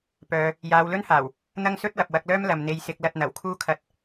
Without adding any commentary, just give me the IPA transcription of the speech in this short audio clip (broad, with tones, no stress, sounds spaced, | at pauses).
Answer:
p œː˨ | j aː˨˧ w l ɵ˥ n h aː˨˩ w | n̪ ɐ˥ ŋ s ɵ˥ t̚ w ɐ˨ p̚ w ɐ˧ k̚ l œː˥ m l ɐ˨ m n̪ e˧ j s ɪ˧ k̚ l ɐ˧ t̚ n̪ ɐ˨˩ w kʰ uː˥ kʰ ɐ˧ t̚